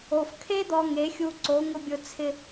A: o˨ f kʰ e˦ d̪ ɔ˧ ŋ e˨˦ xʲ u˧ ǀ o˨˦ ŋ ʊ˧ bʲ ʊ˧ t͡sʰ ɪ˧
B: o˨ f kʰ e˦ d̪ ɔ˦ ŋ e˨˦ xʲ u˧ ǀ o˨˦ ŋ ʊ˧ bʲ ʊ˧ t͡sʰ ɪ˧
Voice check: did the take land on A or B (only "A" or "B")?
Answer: A